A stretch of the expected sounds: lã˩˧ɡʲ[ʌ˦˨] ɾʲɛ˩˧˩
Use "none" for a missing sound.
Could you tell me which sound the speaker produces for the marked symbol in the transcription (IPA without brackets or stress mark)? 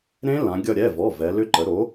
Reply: ʌ˦˨